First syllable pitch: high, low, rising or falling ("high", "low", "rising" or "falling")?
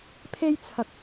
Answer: high